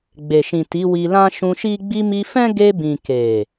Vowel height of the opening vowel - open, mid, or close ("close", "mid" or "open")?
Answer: mid